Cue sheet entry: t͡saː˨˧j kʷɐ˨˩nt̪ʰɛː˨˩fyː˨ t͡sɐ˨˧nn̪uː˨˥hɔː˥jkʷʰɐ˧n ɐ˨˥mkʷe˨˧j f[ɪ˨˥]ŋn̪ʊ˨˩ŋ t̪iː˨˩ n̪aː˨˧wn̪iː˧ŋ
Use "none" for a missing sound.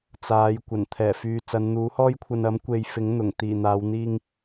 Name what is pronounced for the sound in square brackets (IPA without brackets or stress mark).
ɪ˨˥